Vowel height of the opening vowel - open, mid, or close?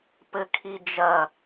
mid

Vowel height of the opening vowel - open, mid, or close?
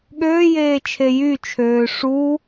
mid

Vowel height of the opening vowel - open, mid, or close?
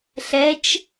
mid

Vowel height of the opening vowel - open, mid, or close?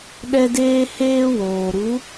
mid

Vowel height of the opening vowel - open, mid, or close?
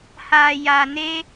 open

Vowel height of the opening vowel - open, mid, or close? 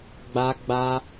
open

